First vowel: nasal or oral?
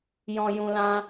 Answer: nasal